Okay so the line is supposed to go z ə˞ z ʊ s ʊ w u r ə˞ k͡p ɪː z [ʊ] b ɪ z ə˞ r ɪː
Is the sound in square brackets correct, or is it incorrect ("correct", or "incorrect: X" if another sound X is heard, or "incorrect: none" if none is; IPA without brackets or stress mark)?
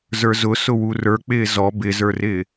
incorrect: ɔ